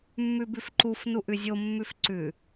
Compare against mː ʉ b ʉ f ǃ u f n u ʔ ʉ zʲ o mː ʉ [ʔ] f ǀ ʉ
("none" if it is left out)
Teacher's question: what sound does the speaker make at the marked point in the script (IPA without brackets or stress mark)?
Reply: none